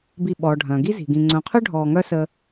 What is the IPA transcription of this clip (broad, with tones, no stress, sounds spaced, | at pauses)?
b i˨ ɓ ɔː˩ ɖʱ œ̃˩ ɡ i˦ z i̤˩ ɡ ĩ˨ ŋ͡ǀ œ̃˨ qʰ ø˥ ɖʱ ɔː˨ ŋ œ˦ s ə˦